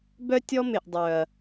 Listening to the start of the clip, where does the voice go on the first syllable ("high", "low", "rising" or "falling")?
high